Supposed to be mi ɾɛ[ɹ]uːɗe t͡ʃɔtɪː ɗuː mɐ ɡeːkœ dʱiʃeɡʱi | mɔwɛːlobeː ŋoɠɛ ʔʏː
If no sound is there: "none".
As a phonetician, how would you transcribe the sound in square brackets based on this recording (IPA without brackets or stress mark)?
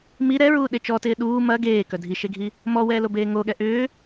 ɹ